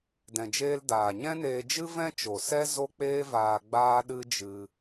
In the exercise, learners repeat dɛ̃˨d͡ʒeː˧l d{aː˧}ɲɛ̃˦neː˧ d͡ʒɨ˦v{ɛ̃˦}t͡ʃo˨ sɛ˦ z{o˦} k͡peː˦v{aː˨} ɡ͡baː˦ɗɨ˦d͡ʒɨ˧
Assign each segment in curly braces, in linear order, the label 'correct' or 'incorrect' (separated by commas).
incorrect, correct, correct, incorrect